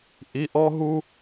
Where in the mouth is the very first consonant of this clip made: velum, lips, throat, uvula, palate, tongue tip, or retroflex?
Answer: throat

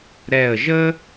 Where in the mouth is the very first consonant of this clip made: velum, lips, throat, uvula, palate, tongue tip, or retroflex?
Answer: tongue tip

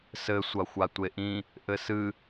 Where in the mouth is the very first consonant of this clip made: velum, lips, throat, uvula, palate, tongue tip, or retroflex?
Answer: tongue tip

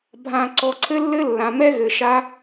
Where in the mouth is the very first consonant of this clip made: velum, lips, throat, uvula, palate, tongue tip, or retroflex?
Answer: lips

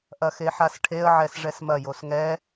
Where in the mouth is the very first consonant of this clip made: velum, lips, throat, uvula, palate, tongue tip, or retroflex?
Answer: throat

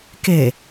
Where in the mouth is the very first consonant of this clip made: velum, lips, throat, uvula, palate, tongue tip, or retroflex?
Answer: velum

